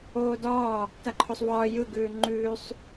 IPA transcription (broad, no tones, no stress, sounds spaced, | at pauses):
oː d ɒː | t a ǃʰ o sˤ v ɒː j ɯ ɡ ʉː ŋ͡ǃ ʉː sˤ